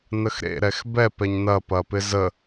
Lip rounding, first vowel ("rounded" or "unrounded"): unrounded